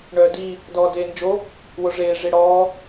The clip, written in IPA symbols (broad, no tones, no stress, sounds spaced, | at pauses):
ɳ œː d i | d ɔː d eː n d͡ʒ o | w o ʐ eː ʐ i ɽ ɔː